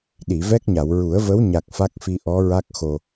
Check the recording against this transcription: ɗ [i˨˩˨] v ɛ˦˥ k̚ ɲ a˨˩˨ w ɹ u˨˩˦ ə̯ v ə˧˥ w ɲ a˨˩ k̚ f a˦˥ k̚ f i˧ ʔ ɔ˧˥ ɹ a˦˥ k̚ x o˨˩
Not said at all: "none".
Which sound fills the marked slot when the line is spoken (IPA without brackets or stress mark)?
i˨˩˨